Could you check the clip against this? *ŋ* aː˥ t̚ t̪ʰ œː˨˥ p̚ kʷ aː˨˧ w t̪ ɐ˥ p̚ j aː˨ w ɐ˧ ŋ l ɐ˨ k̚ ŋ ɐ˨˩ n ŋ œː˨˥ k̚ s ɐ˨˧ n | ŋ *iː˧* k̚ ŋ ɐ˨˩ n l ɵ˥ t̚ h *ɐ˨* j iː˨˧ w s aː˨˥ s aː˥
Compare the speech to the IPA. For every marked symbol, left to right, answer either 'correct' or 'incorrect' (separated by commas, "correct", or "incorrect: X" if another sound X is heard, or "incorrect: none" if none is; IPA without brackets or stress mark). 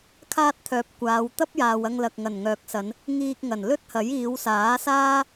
incorrect: kʰ, correct, incorrect: ɐ˨˥